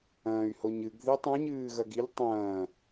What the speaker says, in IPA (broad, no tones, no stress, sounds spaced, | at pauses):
ɐ̃ː y̯ h o ɲ ɨ ɡ ð i tˤ ã ɲ ɨː ɣ ɐ ɡ i ʎ tˤ ɐ̃ː